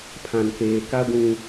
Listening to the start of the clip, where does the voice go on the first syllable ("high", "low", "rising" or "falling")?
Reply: low